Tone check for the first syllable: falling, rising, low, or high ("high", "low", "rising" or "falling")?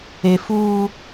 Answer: high